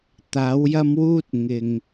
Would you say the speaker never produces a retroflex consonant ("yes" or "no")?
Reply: yes